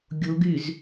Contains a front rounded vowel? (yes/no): yes